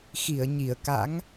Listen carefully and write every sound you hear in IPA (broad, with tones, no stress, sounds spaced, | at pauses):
x i˧˩ ə̯ ɲ i˧˩ ə̯ k a̰˧˥ ŋ